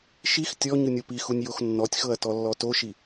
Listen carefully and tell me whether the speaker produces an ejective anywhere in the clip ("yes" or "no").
no